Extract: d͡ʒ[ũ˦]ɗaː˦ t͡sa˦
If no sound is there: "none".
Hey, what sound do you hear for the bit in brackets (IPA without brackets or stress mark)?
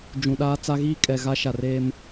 ũ˨